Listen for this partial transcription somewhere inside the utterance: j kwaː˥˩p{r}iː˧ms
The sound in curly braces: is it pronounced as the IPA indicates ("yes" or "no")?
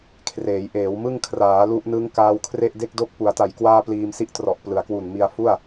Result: no